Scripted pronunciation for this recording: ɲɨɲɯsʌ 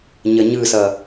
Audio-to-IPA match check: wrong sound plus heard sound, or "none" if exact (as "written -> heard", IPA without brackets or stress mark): ɨ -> ə